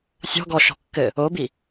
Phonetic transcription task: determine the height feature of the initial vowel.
mid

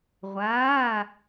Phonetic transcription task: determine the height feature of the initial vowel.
low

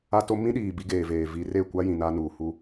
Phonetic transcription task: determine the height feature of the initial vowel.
low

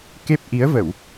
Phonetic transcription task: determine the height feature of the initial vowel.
mid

